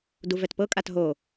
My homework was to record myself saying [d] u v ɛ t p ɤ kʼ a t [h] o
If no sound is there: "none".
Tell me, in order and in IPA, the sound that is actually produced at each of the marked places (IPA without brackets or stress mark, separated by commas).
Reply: d, ɦ